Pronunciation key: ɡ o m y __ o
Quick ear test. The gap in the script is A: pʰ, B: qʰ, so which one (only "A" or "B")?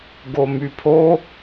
A